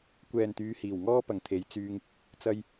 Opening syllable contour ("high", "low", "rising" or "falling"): low